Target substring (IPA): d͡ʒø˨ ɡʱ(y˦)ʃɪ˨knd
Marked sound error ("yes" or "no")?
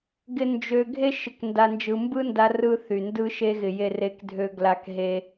yes